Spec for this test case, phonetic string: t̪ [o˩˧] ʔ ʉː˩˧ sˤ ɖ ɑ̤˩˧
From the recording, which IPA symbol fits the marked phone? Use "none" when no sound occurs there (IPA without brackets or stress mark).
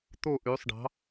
o˧˩